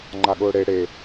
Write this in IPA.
ŋ͡ǃ a ɠ ʊː ɽ e ɽ e

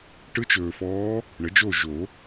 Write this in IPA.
ʈ ɯ˧˥ t͡ʃ ɵː˨ f ɔː˧˥ | ɳ ə˩˥ d͡ʒ o˥˨ ʒ o˨˩˦

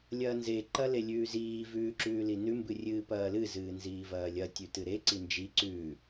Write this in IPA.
lʲ ɐː n z e ǃ ɐ l e lʲ ʉː z iː v ʉː ǁ ʉː l i n ʉ m b ɨ rʲ ɨː p ɐː l ɨ z ɨː n z iː v ɐː lʲ ɐ tʲ ʉ t ɨ ɾ e ǀ i n d͡ʒ i ǀ ʉ

